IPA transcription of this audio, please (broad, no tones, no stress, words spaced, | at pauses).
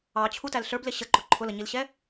ɑt͡ɕʰutæl ɬə˞blɪ ɕəǃʊ ǃʰʊləɲilɕɛ